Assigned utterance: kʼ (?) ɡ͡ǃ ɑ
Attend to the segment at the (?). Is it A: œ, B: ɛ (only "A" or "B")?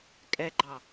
B